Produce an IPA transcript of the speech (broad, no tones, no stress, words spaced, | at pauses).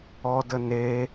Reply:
ɔdə ne